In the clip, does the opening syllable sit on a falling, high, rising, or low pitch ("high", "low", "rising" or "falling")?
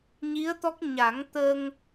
rising